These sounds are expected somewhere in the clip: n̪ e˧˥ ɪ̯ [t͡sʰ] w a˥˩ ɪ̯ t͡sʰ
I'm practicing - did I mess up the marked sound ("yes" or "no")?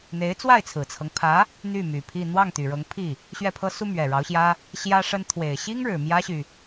yes